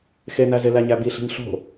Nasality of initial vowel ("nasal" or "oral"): oral